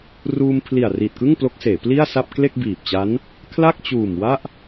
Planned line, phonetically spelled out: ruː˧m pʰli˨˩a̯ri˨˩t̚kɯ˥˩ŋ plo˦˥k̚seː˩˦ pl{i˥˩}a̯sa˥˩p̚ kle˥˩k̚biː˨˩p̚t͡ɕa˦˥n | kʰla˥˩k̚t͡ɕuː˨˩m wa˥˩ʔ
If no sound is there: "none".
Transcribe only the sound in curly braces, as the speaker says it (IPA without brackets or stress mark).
i˥˩